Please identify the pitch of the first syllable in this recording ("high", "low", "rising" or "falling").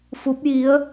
rising